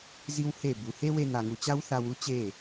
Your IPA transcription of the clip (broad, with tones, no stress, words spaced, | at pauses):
zi˦w he˦˨bu˨ he˦we˧n̪a˨ŋu˨ t͡ɕa˦wθa˧w u˦t͡ɕe˦˨